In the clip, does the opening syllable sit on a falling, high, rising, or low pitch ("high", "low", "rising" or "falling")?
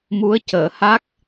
rising